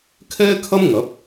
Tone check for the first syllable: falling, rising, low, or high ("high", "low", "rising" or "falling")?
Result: high